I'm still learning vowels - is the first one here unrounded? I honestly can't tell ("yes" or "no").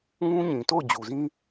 no